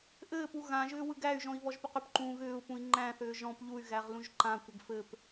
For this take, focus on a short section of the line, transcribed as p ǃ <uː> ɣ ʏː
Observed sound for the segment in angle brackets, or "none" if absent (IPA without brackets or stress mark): ũː